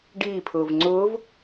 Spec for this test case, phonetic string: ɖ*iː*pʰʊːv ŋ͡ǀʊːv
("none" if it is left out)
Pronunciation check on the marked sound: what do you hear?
iː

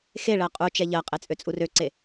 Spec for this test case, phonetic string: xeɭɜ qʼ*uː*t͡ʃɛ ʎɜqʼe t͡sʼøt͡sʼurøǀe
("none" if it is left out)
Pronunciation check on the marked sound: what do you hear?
u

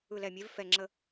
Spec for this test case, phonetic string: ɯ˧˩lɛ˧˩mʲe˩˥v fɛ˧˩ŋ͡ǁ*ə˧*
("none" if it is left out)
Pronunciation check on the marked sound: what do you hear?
ə˧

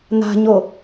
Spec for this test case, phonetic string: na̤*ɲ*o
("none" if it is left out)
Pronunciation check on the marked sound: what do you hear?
ɲ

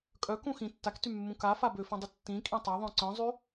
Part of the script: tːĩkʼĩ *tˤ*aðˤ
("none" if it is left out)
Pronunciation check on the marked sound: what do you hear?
tˤ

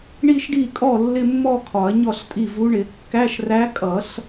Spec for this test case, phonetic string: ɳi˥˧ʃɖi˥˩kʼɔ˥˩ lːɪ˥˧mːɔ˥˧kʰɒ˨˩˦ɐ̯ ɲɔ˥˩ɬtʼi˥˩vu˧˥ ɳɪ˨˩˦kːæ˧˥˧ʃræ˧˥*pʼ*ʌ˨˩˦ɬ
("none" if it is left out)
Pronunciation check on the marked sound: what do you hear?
kʼ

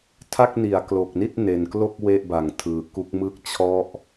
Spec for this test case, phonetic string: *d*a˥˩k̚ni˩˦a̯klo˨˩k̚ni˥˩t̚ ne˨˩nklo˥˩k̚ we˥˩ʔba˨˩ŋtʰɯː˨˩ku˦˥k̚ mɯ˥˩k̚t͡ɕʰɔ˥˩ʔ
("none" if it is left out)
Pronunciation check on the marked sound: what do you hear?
tʰ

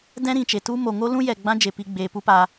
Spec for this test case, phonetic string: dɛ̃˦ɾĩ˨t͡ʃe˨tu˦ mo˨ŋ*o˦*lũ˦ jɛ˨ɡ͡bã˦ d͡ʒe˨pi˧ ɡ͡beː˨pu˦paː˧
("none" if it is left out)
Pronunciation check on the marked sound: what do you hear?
o˦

